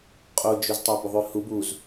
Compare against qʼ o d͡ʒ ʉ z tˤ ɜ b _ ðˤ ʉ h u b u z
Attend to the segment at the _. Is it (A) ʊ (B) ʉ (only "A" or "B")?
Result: A